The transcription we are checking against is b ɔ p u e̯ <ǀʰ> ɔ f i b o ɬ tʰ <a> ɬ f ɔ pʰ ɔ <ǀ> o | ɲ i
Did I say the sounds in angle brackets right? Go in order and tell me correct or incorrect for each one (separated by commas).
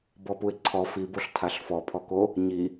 correct, correct, incorrect